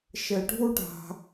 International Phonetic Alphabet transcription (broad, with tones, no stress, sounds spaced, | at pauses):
ʃ ɘ˧ ɖʱ u˦ ɖʱ a̤˧